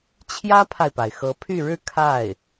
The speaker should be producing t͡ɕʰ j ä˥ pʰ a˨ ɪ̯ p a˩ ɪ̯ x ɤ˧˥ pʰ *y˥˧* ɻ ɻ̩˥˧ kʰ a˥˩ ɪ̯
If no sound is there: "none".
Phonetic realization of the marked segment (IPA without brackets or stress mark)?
y˥˧